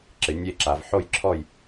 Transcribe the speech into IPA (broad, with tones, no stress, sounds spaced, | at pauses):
ǁ ɪ˨˦ nʲ e˥˧ ǁ a˨˦ v ħ o˥˧ j ǁʰ ɔ˥˧ j